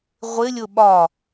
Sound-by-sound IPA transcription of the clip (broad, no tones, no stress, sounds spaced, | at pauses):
ʁʷ ɪ lʲ ʊ ɓ ɒ